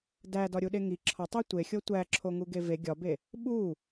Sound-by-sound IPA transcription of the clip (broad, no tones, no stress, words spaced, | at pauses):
dædɒɾʲuɗe ŋi ǁʰɒtˤe tʷexʲo tʷæǁʰoŋuɡe ve ɡʲɒbe | ɓu